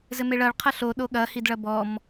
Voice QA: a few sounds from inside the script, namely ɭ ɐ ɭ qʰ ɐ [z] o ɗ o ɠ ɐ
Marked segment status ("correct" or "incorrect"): incorrect